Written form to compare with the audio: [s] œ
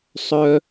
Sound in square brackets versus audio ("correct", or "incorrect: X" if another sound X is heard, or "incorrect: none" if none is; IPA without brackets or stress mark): incorrect: sˤ